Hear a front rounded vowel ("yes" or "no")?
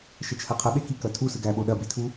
no